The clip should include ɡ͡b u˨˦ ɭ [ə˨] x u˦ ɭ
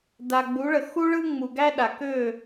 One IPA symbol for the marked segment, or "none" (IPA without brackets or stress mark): ə˨